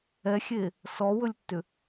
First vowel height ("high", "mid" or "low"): mid